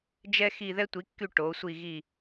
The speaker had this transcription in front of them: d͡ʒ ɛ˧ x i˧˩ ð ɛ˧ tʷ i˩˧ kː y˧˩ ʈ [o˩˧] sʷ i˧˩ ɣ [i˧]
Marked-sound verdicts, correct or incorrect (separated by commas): correct, incorrect